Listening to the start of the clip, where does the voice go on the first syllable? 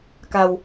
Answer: low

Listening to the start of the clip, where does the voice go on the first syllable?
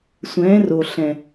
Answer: rising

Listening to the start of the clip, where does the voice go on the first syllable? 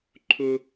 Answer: high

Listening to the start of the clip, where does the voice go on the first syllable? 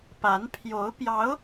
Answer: rising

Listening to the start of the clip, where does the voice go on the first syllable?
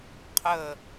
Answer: falling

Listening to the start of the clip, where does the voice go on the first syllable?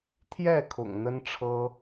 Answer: falling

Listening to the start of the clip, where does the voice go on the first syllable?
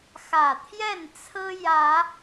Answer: low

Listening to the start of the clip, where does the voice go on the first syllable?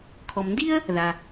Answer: low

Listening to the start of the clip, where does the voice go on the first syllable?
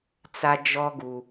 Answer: high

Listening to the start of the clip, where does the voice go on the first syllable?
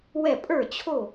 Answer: falling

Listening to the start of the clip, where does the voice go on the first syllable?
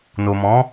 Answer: low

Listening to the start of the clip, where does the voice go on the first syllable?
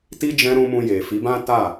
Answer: high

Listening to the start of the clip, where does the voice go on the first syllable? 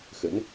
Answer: rising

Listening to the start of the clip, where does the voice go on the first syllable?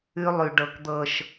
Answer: high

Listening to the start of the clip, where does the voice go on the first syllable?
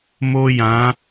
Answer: high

